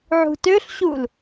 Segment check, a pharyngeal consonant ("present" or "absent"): present